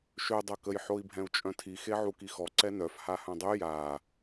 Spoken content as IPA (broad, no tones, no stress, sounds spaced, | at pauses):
ʃ ø dˤ œ k ə j ħ o i̯ bʱ ɛ̃ u̯ t͡ʃʼ œ̃ tʰ i x e ʕ u k i x ɔ ǀ ɛ n œ f h a h œ̃ dˤ y j a